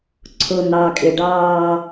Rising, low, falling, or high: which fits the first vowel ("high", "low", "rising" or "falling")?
low